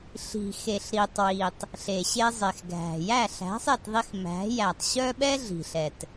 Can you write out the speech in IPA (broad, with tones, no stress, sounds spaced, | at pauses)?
ɬ i̤˨ x e˨ ɬ ɾ i˨ tˤ w i˨ tˤ | ɬ e˨ ɕ e˧ zˤ e˨ x ɡʱ æ̤˨ j æ˦˨ ɬ æ̤˨˦ sˤ e˦˨ t ðˤ i˧ x m æ̤˨˦ j æ˨ tˤ ɕ œ˦ ɓ ɛ˦ ɮ i̤˨ ɬ ɛ˨ t